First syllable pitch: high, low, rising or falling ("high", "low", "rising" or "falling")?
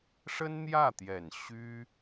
high